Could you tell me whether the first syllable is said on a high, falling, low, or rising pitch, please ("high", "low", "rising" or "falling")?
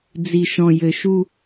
low